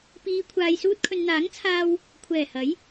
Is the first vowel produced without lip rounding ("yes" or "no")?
yes